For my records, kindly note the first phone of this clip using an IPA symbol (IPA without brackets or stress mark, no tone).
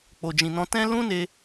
k͡p